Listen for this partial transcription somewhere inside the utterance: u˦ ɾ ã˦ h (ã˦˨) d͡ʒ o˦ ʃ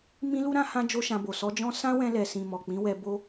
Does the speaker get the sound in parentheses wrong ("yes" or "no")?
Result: yes